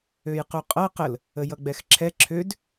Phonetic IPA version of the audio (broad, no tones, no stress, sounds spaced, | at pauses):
ø j q u qʼ ʌ q ə l | ə j ʌ ɡ͡b ɛ x ǁʰ ɛ ǁʰ ø d